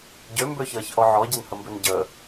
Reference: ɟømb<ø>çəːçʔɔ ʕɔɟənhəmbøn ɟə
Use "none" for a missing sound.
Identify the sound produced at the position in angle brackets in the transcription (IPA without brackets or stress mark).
ø